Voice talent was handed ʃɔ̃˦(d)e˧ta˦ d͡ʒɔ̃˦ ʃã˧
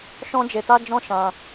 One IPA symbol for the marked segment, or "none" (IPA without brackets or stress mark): d͡ʒ